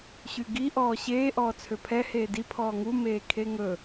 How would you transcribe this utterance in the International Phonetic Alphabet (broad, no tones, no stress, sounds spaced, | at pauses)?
ɕ y ɡ i ʔ ɔː ɕ eː ʔ ɔː t͡sʰ ø pʰ ɛ h eː d i pʰ ɔː ŋ u m eː kʰ e ŋ ɵ